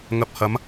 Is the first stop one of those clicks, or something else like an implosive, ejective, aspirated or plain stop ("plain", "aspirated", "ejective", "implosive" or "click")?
plain